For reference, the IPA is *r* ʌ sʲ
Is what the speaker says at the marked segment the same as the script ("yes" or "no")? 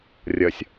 no